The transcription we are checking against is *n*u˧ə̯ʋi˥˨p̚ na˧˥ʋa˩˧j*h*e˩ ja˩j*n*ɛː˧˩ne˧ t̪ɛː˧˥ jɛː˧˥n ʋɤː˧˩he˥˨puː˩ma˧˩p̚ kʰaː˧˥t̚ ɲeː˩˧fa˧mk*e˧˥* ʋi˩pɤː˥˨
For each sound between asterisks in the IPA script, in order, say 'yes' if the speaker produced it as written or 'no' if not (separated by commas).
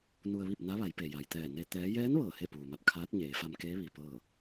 yes, no, no, no